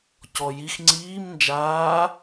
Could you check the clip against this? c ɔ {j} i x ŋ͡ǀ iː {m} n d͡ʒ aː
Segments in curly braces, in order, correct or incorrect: correct, correct

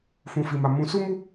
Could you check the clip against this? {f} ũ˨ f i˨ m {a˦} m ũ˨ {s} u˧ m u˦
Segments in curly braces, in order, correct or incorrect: correct, incorrect: a˨, correct

